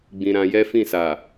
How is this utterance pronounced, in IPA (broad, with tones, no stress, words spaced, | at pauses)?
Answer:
ɡ͡bĩ˧ɾã˧ jɛ˦fĩ˦˨sa˨